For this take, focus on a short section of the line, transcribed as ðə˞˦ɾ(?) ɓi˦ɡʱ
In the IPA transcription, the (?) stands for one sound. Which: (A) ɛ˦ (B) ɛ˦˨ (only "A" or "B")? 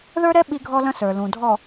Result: A